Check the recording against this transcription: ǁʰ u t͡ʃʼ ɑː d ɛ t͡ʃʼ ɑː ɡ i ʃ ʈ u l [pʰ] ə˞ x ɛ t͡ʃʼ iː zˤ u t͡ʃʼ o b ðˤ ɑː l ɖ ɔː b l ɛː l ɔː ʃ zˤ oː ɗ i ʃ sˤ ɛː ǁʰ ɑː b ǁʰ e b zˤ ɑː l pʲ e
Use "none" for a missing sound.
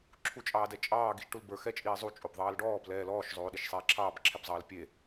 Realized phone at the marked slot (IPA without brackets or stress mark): b